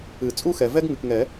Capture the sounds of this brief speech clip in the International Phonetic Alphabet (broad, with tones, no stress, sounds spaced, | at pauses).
ɨ˨˩˦ t͡sʼ u˥ x ɛ˨ v ɛ˥ ɡ ŋ ɨ˨ k ŋ ɛ˨˩˦